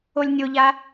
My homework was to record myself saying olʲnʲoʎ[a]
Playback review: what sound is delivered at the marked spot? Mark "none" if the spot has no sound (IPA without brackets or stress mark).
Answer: a